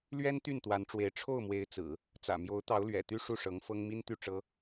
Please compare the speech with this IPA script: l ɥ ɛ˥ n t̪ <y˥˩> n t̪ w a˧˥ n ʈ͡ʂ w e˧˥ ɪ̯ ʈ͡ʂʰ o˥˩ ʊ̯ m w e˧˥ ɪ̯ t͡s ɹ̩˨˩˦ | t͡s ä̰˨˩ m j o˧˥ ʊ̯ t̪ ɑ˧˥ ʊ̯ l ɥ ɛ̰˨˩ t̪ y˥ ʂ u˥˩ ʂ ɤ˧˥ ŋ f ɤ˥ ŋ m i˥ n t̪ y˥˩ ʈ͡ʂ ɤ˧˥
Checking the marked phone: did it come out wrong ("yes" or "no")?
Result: no